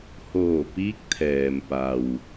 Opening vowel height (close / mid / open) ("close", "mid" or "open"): mid